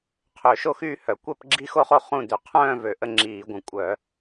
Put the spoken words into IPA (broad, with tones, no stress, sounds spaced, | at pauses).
qʰ ø˧˩˧ ʃ o˥˨ x yː˥˨ h œ˧˩˧ kʷ ɛ˥˨ p ɡ͡ǁ i˥˨ x o˥˨ χ o˥˨ χ ũ˥˨ d̪ ø˧˩˧ qʰ œ̃ː˥˨ v ø˧˩˧ ʔ ə˥˨ ŋ͡ǁ iː˧˩˧ ɡʷ ə̃˧˩˧ kʷʼ œ˧˩˧